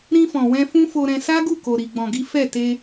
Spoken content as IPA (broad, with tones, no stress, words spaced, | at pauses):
ɾĩ˧fɔ̃˨ wɛ̃˧fũ˦fo˧ɾɛ̃˧ sa˦ɡu˦˨ko˨ ɾi˨ɡ͡bɔ̃˨ɡi˨˦ fɛ˦˨ te˧